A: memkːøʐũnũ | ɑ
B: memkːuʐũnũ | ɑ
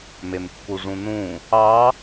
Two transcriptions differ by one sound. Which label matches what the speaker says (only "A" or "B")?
B